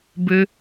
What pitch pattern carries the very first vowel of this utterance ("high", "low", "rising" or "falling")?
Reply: high